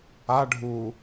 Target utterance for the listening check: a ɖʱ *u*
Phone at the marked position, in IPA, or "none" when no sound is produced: u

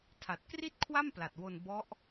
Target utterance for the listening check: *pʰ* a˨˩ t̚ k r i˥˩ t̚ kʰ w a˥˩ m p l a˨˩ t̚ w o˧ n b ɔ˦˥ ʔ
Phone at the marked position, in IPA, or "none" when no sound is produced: tʰ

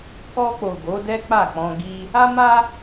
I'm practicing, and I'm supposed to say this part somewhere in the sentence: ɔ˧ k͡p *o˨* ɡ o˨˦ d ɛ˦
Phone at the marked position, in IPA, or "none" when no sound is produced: o˨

